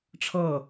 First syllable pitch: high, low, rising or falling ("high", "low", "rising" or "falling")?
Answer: falling